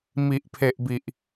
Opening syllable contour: low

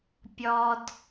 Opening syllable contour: low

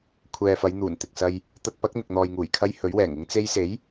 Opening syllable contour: low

